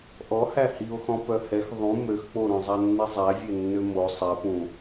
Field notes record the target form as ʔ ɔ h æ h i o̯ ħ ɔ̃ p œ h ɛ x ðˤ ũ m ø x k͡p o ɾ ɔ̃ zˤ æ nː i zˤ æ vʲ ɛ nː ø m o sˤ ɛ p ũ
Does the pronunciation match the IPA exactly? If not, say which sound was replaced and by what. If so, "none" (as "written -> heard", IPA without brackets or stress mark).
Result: ħ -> x